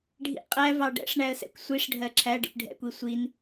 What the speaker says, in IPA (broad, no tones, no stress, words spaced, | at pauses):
ɖʱḭqʼæ vɑɖɛ̰ʂɳæə̯sɛ̰kʷ sʷiʂ ɖʱɜǁʰæ ɖḭpɖʱɛ̰kʷi sʷin